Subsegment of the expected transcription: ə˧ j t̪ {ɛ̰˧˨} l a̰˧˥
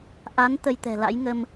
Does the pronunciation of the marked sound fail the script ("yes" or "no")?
yes